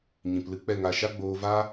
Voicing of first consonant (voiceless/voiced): voiced